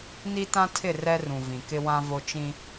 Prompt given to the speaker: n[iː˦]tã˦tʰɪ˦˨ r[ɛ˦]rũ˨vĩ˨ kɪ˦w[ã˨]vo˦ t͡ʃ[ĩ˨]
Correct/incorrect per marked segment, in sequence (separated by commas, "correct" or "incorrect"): incorrect, correct, incorrect, incorrect